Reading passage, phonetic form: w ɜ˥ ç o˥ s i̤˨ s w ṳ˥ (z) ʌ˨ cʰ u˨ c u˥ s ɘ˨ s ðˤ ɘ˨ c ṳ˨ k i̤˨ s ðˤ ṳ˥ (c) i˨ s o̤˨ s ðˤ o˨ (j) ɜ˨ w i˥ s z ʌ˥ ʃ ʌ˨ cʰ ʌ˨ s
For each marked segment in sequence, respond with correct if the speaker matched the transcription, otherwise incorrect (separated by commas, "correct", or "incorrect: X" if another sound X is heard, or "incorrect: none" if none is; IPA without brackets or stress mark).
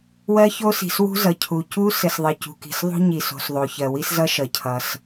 correct, incorrect: ɲ, incorrect: ç